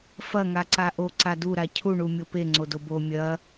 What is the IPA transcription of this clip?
fɐŋaǀa ʔoǀa duɾa cʰuɳumʲo peŋ͡ǀodo bo mʲɐ

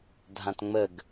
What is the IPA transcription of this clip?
dʱãtŋ͡məɡ

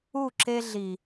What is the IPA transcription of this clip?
u˦˨ǁe˦ɮi˨

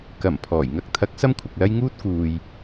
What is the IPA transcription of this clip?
kɐ˨˩m pʰɔː˨˩jŋɐ˥k̚ t̪ʰɐ˨˥k̚ sɐ˥mkʷʰɐ˨k̚lɐ˥j ŋuː˥t̚ kuː˨j

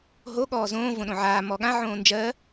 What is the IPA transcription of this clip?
ɦo ɠɔːzõː võɗõʕaː mɔɠã ʕõːnd͡ʒɜ

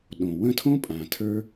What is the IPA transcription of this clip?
ɗõ˨ wə̃˦˨tʰõ˦ pʼã˨tʰə˞˦

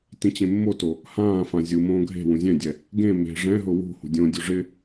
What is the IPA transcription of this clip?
tĩt͡ɕẽmːoto | hãːfã zʲu mõːɡʱe̤wũ zʲɛ̃dʲɛ | ɡẽ me̤ ʐɛ̃ɦʊ wṳ hṳdʲõdʲo ʐɪ

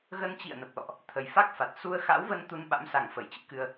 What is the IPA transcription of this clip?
ɣə˧nt͡ɕḭ˧˨ə̯nə˨˩p̚lɔ̰˧˨ʔ | t̪ʰə˨˩jfa˦˥k̚fa˨˩t̚ su˧ə̯xa̰˧˥wvə˧n t̪u˧nɓa̰˧˥msa˨˩ŋ fə˧˩jt͡ɕɨ̰˧˥kɨ˧ə̯

